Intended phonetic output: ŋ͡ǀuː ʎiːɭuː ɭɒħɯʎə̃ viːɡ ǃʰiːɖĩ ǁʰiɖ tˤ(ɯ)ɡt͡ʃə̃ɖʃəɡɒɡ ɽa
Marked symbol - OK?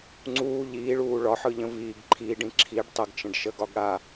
no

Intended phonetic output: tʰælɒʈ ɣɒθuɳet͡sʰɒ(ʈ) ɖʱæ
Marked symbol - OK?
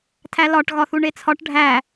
yes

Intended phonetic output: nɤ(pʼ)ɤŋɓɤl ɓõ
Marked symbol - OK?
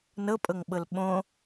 yes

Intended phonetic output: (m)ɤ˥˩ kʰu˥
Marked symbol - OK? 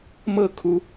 yes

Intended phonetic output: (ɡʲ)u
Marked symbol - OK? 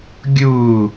yes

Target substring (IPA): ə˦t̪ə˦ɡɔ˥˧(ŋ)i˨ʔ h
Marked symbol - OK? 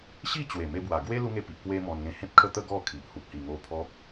no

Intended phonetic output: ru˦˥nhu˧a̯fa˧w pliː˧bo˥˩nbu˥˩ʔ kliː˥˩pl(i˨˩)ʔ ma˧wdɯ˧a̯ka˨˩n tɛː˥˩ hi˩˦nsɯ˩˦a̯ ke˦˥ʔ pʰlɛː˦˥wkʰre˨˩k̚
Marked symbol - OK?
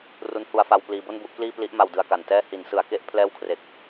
no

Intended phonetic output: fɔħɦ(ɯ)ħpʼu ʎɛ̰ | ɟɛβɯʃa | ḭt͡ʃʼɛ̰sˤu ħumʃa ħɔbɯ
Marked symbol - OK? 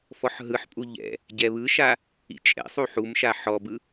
yes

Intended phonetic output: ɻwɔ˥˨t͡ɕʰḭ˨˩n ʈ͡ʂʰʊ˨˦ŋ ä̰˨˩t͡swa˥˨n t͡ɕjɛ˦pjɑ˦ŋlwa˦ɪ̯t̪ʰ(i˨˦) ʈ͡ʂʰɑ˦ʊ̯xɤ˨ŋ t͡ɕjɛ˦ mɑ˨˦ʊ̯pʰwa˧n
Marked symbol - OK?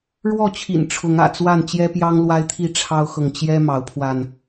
no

